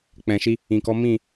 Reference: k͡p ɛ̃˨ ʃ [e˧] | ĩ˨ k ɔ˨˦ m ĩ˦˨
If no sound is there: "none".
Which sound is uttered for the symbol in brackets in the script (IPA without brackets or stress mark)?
i˧